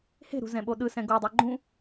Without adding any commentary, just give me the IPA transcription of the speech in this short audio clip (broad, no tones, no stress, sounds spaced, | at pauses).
h e̤ ɾ ṳ z ɛ̃ ɓ o ɗ ɯ s ɛ̃ ɡ o dˤ ɯ ɡ͡ǃ ũ